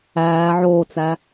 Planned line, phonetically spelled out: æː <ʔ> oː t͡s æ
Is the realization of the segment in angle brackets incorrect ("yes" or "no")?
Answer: yes